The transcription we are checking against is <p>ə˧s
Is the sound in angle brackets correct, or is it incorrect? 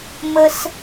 incorrect: m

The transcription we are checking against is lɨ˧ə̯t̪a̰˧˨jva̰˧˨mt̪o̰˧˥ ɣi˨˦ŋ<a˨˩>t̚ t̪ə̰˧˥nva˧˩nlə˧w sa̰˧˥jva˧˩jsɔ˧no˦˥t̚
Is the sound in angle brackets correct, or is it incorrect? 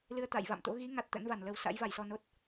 correct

